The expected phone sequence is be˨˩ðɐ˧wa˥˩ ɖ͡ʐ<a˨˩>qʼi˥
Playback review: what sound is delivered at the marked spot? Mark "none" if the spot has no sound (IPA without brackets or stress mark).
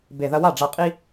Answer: a˧